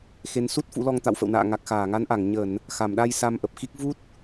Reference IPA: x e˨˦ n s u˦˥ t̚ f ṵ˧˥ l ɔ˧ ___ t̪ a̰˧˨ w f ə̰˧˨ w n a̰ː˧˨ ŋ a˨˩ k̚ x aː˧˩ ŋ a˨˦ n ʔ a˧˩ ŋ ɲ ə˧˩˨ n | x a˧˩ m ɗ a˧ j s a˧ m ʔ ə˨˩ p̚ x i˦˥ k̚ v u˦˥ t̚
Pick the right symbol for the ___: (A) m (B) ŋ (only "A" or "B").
B